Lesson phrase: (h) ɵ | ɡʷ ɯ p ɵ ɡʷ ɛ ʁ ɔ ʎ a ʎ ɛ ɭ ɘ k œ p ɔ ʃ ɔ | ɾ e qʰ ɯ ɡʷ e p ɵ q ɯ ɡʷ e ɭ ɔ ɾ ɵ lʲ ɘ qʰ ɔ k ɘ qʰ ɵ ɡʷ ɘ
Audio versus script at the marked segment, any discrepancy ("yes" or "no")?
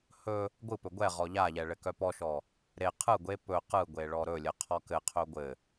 no